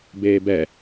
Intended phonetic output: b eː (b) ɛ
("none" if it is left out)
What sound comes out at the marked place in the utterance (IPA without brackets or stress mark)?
b